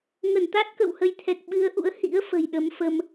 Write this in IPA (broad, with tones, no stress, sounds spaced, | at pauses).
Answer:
ŋ ə˧˩ n t̪ a˦˥ t̚ k ə̰˧˨ w h ə˨˦ j t̪ʰ ɛ˨˩ k̚ ɓ ɨ˨˦ ə̯ ʔ ṵ˧˥ ə̯ h ḭ˧˥ ə̯ f ə̤˨˩ j ɗ ə˨˦ m f ə˧ m